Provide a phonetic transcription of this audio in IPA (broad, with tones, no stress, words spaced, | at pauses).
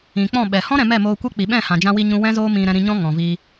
ĩ˨k͡pɔ̃˦˨ ɓɛ˨ hɔ̃˦ ɾɛ̃˧mɛ˦˨ moː˧kʷɛ˦ k͡pi˨ɓɛ̃˦˨hã˨d͡ʒã˧ wi˧ɲũ˧ wɛ̃˦zoː˦mĩ˧ ɾɛ̃˧ɾĩ˧ɲɔ̃˦ ŋɔ̃˨vi˧